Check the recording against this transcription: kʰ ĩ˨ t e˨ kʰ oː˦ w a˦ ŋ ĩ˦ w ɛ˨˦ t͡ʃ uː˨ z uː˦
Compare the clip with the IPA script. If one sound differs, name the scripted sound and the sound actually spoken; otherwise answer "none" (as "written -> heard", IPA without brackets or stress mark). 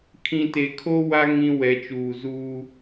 none